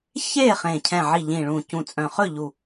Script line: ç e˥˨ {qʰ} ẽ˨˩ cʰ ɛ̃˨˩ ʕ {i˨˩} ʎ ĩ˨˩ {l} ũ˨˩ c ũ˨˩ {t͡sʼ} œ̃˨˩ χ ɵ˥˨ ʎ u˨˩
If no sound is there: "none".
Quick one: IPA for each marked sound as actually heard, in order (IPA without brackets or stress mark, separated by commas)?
χ, i˨˩, ɭ, t͡sʼ